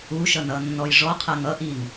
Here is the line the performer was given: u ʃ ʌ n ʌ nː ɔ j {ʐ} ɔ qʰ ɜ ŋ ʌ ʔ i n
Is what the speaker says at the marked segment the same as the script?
yes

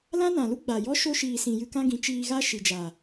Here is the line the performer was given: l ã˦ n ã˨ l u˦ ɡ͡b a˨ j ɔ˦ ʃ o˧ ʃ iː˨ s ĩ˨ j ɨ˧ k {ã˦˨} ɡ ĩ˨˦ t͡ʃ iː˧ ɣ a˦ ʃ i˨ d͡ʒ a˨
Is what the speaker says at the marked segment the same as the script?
no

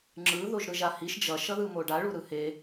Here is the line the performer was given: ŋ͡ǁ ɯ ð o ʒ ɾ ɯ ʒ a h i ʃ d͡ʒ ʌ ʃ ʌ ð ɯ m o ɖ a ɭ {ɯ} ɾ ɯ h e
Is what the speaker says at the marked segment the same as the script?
no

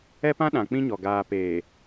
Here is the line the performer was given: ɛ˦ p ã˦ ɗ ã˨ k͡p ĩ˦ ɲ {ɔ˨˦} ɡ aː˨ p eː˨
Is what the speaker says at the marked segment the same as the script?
no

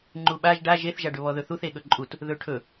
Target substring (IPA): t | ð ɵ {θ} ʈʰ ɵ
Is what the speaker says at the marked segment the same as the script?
no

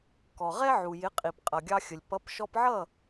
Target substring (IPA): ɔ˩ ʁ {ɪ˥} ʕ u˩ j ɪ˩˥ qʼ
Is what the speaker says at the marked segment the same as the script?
no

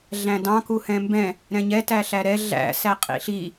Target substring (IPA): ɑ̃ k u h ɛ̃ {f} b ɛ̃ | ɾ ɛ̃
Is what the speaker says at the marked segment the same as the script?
no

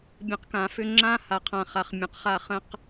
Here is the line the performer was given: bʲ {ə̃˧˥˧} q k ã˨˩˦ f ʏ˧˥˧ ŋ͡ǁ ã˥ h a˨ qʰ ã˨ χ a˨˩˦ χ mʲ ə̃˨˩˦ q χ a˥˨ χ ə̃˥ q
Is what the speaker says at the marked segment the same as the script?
no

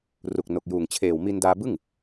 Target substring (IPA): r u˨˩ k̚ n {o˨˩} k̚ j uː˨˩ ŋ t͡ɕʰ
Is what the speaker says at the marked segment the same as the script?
yes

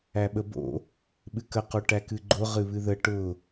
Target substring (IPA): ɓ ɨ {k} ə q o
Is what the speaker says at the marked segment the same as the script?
yes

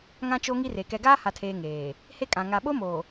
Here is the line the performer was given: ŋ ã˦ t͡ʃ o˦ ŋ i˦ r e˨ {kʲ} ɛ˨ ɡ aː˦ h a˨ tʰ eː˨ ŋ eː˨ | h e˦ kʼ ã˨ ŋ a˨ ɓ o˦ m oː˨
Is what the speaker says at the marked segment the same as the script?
no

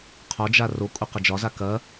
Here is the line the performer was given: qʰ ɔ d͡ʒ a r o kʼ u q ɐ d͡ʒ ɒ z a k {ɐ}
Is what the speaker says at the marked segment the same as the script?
yes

